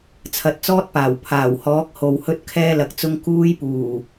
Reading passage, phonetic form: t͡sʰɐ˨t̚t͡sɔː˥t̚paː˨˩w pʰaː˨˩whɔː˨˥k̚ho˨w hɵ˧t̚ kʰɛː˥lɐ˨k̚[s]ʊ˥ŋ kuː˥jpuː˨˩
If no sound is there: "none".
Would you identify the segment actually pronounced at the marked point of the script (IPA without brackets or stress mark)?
t͡s